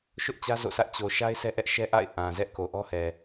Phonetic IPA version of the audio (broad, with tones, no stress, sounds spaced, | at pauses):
ʃ ʊ˦ ʔ t͡ɕ ä˦ z o̰˦˨ sʰ ä˦ ʔ t͡ɕ o˨ ʃ a˦ ɪ̯ sʰ ɛ˦ ʔ ɛ˦ ʔ ʃ ɛ˦ ʔ a̰˦˨ ɪ̯ ʔ ã˨ z ɛ˦ ʔ k o˨ ʔ ɔ˦ h ɛ˨